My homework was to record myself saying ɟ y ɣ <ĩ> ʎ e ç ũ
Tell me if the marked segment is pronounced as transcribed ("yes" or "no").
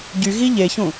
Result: no